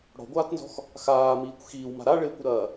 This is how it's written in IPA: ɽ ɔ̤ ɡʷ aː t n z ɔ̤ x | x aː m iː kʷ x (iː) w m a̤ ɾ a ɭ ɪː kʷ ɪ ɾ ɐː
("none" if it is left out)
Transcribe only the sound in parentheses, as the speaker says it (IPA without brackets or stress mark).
iː